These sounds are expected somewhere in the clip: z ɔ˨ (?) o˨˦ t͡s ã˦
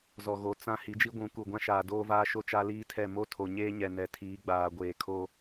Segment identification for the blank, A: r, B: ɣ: B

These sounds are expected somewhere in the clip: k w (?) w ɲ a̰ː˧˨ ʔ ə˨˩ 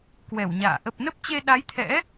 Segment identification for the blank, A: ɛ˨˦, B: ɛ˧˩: B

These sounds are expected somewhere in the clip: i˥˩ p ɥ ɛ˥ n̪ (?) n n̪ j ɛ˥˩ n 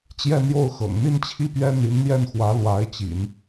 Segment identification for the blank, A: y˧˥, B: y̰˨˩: A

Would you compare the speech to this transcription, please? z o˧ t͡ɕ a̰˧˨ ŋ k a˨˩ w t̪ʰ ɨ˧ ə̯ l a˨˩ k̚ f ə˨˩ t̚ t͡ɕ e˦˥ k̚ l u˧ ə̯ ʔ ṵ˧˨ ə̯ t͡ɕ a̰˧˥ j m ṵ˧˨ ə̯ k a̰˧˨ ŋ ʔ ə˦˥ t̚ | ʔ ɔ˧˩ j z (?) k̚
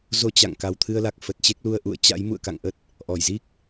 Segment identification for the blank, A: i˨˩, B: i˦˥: B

